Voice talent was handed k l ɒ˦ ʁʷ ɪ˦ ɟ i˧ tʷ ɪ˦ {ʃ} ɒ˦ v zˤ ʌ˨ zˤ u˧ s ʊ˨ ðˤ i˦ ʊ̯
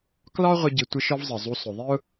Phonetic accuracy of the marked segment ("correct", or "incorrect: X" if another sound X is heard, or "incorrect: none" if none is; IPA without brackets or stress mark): correct